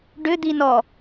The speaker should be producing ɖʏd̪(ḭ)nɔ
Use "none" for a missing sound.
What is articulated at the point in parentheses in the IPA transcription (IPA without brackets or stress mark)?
i